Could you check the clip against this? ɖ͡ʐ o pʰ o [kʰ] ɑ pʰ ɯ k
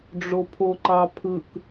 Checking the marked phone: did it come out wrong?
yes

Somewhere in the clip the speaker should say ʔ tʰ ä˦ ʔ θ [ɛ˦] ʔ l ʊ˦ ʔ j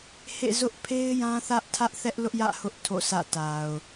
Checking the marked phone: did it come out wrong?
no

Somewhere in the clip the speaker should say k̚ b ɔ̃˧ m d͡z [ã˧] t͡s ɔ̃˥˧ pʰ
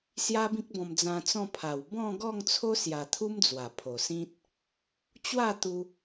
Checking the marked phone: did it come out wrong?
no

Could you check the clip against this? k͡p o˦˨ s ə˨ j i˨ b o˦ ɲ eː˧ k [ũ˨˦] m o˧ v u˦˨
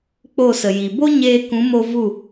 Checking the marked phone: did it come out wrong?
no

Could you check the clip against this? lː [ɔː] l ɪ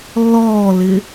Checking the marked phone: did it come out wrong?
no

